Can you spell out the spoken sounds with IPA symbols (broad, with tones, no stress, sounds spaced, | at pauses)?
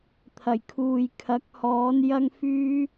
t̪ʰ ɐ˨˩ j kʰ uː˨ j kʰ ɐ˨˥ k̚ h ɔː˨˥ n j ɐ˥ ŋ f yː˥